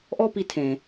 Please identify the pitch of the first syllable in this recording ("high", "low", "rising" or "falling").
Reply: high